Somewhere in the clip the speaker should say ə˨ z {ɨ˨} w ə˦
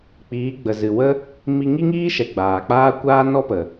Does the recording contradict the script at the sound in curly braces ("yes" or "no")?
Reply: no